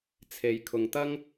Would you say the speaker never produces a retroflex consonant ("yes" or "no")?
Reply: yes